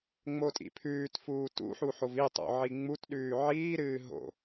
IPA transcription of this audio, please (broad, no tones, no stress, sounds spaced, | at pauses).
ŋ͡m o tʼ ḭ pʰ ʉː t f uː t ṵ ħ u ħ o v i tˤ o̰ ʕ i ŋ͡m u t ɗ ʉː ʕ iː ɾ ɨː ɦ o̰